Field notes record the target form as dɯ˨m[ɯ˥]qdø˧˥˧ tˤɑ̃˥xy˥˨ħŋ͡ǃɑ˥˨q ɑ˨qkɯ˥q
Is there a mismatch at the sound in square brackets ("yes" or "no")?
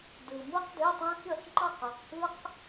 no